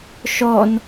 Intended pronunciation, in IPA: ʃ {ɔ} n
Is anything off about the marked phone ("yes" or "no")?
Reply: no